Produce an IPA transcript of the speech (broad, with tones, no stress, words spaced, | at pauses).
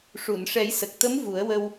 ʂu˨˩˨nʂɛ˨˩˦jsə˨˩k̚t̪ə˧˥m vu˨˩˦ə̯wə˧w